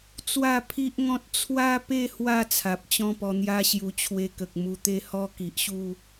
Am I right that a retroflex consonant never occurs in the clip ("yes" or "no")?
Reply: yes